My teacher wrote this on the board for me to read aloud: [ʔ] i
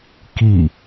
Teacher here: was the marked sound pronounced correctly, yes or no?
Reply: no